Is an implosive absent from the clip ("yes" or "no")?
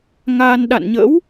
no